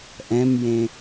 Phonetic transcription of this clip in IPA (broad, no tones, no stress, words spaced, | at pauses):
ʔɛ̃mjẽ